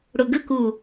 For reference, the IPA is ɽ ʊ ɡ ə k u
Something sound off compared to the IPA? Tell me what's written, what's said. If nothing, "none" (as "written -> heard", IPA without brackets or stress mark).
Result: none